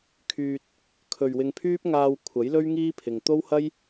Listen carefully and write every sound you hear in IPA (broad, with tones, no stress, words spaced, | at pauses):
kʰyː˧t̚ | kʰɵ˨ɥwɪ˧ŋpʰyː˥p̚ ŋaː˧w kʷʰɐ˨˥jlɵ˥ɥ ŋiː˥pʰɪ˨ŋ t̪o˥whɐ˥j